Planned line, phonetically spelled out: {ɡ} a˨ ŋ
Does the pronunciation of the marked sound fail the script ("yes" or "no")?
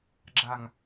yes